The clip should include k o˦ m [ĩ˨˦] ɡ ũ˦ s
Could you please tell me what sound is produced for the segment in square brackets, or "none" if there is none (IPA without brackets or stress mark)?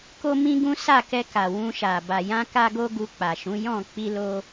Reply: ĩ˦